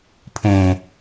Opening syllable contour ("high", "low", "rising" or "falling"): low